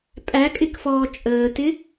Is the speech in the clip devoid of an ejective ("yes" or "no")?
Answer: no